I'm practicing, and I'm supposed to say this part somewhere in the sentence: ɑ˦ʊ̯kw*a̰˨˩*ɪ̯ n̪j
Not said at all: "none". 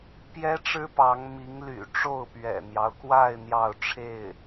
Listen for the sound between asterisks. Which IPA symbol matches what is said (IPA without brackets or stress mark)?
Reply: a˥˧